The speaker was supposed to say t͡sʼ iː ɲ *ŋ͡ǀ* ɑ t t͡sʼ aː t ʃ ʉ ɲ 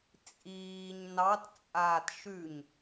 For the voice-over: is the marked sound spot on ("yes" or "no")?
no